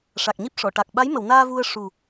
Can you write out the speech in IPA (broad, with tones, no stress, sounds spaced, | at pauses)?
ʂ a˨˩ k̚ ɲ i˦˥ p̚ ʂ ɔ˨˩˨ ʈ a˨˩ k̚ ɓ a˧˥ j m ə˨˩˨ w n aː˧ v u˧ ə̯ ʂ u˨˩